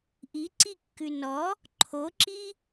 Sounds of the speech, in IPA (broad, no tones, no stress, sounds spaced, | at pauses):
ʔ i ǀ i kː ʉ n ɔ | ǃʰ o ǁ i